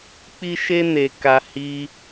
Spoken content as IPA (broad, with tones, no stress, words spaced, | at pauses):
k͡pi˦ʃe˦ne˧ka˧ hi˧